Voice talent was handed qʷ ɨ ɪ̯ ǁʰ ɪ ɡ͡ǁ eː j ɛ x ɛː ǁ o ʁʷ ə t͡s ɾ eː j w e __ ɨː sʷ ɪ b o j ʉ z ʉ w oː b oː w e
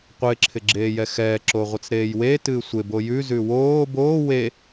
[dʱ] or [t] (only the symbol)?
t